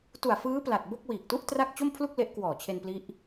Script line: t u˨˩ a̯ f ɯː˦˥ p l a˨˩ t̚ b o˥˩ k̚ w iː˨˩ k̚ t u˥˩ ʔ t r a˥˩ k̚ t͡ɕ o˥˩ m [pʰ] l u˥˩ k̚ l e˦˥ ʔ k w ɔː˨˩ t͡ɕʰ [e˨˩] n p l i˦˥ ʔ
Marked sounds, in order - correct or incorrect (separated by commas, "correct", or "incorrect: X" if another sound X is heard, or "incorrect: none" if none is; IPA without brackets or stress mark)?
correct, incorrect: e˧